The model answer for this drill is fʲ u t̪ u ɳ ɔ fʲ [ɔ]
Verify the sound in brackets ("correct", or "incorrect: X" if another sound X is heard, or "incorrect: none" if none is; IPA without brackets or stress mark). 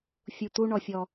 correct